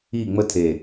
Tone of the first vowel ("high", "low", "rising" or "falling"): falling